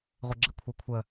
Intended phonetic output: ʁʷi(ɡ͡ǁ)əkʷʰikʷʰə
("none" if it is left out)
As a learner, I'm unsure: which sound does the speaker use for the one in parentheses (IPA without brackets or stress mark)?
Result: ɡ͡ǁ